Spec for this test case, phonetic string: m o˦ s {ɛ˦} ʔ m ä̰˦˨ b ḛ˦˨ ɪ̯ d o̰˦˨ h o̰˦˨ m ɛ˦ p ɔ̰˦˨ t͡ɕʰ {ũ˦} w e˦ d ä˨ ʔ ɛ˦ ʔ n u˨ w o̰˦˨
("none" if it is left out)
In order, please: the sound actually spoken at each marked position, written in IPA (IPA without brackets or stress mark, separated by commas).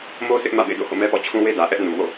ɪ˦, ũ˦